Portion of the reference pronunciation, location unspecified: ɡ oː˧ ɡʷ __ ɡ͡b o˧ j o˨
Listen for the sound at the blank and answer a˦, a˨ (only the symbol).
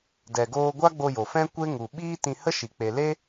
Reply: a˦